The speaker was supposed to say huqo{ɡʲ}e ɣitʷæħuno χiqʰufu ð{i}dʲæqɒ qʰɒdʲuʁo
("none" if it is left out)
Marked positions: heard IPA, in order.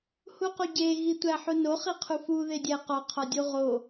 ɟ, e

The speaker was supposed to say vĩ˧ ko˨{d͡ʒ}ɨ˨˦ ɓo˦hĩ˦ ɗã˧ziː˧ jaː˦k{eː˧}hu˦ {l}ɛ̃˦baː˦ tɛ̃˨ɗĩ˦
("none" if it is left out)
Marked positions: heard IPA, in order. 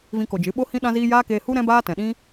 d͡ʒ, eː˧, ɾ

